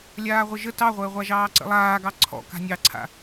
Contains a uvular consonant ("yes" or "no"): yes